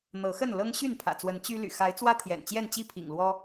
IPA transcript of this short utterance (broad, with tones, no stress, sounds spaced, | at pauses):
n̪ ɤ˨˦ x ə˥˨ n l ɤ˦ ŋ ɕ y˥˨ n pʰ ä̰˨˩ t͡s w ə˨˦ n t͡ɕ y˦ l y̰˨˩ x a˨˦ ɪ̯ t͡s w ä˦ t̪ʰ j ɛ̰˨˩ n t͡ɕ j ɛ˥˨ n t͡ɕ i˥˨ pʰ ḭ˨˩ ŋ l w ɔ˦